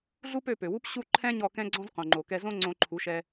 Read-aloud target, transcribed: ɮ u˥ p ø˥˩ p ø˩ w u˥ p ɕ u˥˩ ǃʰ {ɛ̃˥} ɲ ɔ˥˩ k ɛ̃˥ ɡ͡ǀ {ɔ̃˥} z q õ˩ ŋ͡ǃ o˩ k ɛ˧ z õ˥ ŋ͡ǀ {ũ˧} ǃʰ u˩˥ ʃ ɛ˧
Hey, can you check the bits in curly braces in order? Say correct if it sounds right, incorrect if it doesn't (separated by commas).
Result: correct, correct, incorrect